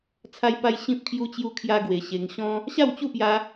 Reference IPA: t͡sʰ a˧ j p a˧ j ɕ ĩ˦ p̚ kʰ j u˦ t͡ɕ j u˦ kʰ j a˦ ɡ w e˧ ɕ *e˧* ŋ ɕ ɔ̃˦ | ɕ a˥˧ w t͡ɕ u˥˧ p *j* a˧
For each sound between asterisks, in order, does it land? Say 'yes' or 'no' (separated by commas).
yes, yes